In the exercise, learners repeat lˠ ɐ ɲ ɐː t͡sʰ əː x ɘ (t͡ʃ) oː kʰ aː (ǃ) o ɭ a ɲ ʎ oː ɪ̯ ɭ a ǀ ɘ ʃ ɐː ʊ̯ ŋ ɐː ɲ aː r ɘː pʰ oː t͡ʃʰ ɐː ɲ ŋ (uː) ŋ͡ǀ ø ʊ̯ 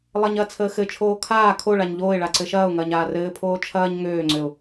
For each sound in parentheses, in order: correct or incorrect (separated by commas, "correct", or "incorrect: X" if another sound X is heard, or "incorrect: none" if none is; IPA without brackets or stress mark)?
incorrect: t͡ʃʰ, incorrect: kʰ, incorrect: øː